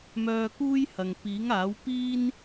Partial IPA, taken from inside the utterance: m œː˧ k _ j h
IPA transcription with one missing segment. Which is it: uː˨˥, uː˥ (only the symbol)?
uː˥